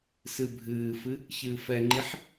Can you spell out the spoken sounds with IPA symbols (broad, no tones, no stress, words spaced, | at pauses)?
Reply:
sɨbʱɨːfɨ | çɨːfɛŋ͡ǃiħ